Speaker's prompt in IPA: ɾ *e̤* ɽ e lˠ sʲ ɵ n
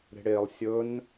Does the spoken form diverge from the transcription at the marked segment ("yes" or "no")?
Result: no